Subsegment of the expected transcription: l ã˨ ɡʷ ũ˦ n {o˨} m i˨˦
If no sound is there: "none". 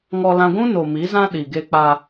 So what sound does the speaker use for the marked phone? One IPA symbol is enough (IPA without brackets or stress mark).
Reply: o˨